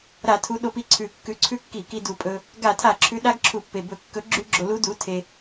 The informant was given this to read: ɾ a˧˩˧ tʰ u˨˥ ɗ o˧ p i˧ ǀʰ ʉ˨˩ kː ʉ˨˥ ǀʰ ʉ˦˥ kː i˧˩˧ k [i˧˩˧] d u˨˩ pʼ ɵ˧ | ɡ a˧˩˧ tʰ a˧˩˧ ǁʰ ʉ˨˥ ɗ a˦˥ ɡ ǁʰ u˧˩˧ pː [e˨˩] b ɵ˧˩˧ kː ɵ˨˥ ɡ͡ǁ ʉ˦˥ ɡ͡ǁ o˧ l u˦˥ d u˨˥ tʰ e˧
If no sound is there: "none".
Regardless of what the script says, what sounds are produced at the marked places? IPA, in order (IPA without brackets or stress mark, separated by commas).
i˧, e˨˩